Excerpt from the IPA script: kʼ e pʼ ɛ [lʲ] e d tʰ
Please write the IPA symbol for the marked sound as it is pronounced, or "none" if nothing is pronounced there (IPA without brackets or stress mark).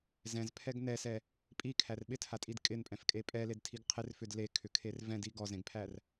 l